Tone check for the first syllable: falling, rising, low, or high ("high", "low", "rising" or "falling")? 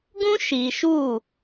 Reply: high